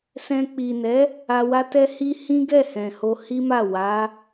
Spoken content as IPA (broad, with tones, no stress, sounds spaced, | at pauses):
s ɛ̃˧ k͡p i˨ n ɛ˨˦ | a˧ w a˦ t ɛ˦ h i˦ h ĩ˦ ɡ ɛ˦˨ h ɛ̃˨ h o˧ h i˦ m a˦˨ w a˨˦